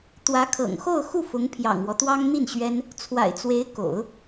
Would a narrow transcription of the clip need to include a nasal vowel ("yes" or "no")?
no